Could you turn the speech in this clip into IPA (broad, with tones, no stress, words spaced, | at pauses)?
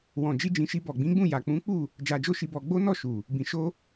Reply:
wɔ̃˨d͡ʒi˧d͡ʒĩ˨ʃi˧ bɔ˨ɡ͡bĩ˨˦ɡ͡bũ˦˨ ja˨k͡pũ˨˦k͡pu˦˨ | d͡ʒa˧d͡ʒo˦ʃi˧bɔ˧ ɡ͡bo˦ nɔ˦˨ ʃu˨ | bĩ˧ ʃo˦